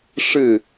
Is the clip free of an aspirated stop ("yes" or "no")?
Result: yes